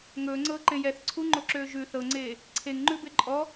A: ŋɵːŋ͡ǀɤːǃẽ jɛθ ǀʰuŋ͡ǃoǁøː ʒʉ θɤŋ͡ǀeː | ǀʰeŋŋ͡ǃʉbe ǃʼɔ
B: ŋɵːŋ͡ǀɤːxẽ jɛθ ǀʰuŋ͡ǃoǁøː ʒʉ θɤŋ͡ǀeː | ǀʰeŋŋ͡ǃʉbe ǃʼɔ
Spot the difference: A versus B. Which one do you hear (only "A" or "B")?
A